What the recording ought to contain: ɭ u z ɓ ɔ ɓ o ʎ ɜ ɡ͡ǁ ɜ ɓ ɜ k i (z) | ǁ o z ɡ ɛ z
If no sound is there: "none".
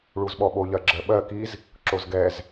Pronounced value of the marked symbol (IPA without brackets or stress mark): z